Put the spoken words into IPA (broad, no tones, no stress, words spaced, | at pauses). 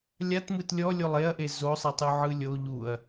lʲatmɯt lʲɔlʲolˠ eɐ̯ʔe zosˤi tˤuʕɯlʲo ʎuɐ̯